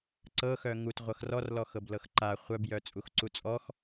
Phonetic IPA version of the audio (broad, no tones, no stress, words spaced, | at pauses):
ǀɤxœ ŋutʁʷɤx rɔrlɔxɤb lɤxǃa χʷœbjœ t͡sʼuxǀut͡sʼɔx